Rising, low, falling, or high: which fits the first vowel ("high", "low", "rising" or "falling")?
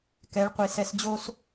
rising